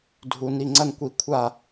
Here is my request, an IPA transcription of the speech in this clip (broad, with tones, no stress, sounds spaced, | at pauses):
dʱ u˩ n i˧˩ ŋ͡ǀ ɐ˥˧ n kʷ i˧˩ kʷʰ a˥˧